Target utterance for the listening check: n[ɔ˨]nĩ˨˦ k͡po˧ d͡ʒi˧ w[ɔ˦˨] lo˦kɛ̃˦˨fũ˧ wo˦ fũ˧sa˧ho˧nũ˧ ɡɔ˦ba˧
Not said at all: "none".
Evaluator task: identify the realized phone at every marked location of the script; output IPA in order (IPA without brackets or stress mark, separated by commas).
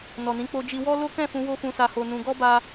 ɔ˨, ɔ˦